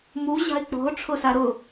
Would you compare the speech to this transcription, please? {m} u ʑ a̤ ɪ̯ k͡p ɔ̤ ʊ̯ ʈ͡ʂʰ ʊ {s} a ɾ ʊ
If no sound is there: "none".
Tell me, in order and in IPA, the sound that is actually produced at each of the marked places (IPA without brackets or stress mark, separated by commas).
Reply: m, s